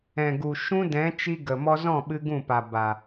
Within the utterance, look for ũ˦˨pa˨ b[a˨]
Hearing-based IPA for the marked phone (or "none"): a˨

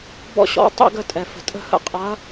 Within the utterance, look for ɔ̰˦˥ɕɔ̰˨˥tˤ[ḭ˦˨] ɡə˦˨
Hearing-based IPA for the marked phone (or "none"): ḭ˦˨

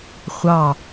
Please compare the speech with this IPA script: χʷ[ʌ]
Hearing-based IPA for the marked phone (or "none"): ɑ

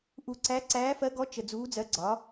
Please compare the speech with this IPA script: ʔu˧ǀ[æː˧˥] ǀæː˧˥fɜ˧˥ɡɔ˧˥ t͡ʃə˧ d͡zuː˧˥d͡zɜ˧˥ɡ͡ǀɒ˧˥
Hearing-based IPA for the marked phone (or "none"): æ˧˥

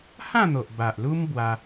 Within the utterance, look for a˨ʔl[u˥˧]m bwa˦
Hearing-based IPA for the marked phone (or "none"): u˦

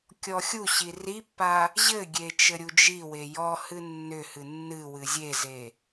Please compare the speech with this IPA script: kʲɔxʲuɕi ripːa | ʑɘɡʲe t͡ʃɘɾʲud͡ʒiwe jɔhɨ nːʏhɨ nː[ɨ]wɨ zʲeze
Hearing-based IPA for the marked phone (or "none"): ɨ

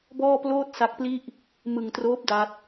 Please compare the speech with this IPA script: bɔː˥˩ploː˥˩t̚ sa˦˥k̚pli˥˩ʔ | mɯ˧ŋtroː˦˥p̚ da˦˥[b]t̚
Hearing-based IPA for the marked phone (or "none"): none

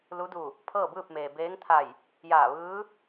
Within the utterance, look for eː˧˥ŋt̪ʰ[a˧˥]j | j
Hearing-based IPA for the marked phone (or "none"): a˧˩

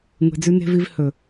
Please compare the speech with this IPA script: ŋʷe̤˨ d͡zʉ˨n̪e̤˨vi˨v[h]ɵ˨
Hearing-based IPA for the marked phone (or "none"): h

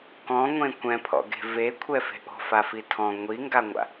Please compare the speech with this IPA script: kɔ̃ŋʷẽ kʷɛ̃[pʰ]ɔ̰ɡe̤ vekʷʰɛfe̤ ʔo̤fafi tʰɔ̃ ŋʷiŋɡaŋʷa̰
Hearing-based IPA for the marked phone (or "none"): pʰ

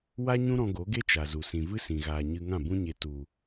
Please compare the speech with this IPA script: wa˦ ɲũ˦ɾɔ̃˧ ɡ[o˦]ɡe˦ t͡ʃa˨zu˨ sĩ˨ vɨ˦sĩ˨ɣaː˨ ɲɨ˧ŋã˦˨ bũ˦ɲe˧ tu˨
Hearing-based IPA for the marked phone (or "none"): o˨˦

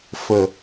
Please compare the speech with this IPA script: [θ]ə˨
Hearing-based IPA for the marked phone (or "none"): f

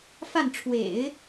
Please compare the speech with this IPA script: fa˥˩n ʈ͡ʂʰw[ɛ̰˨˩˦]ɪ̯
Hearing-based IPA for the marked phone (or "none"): ḛ˨˩˦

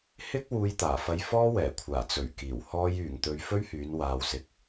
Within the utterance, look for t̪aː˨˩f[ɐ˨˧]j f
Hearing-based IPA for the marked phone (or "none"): ɐ˧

